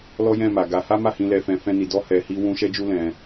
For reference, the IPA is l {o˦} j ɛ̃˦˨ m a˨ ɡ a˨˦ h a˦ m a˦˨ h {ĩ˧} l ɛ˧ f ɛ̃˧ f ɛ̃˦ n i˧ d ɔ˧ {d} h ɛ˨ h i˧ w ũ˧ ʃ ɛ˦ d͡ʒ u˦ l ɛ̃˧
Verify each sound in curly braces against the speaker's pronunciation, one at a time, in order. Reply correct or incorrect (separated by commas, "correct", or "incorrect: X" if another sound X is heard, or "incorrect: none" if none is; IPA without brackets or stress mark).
incorrect: ɔ˦, correct, incorrect: none